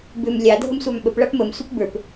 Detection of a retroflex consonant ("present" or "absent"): present